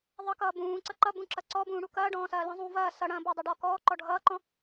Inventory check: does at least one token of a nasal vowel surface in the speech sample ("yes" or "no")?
yes